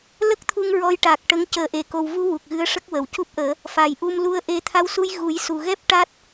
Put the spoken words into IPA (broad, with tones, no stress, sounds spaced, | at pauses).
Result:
l ə˦˥ k̚ t̪ʰ u˧ ŋ ɹ ɔ˧˥ j ʈ a˨˩ k̚ ʈ ə˧˥ ŋ c əː˨˩˦ ʔ e˨˩˨ k o˨˩ w v u˧ w u˨˩ k̚ ɣ ɨ˧˥ ə̯ ʂ ə˦˥ k̚ w ə˨˩˨ w c u˦˥ p̚ ʔ əː˨˩˦ | f a˨˩ j ʔ u˧ m l u˧ ə̯ ʔ e˧ t̪ʰ a˧ w s u˧ j ɣ u˨˩˦ j s u˨˩ ɣ ɛ˦˥ p̚ ʈ a˦˥ t̚